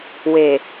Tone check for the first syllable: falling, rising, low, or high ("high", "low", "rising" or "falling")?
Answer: low